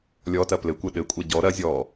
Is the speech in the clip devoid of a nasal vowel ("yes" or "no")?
yes